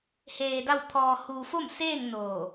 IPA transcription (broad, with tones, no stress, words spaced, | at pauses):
heː˧da˥˨w t̪ʰɔː˧ huː˧ fo˥˨mseː˥˨ŋ noː˧˩